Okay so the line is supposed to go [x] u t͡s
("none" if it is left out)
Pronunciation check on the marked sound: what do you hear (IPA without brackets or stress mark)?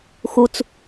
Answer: x